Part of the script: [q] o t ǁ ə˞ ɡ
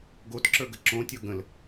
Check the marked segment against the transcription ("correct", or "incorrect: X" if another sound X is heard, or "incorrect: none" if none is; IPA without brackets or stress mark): incorrect: ɡ